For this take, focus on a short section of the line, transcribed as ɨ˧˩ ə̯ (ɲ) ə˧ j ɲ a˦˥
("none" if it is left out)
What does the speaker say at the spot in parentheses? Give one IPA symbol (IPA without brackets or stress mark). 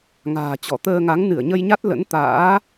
ɲ